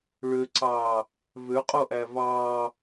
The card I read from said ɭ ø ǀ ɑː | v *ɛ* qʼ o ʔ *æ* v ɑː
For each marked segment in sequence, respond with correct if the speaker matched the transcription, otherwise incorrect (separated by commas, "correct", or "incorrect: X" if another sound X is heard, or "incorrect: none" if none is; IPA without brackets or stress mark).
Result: incorrect: ø, correct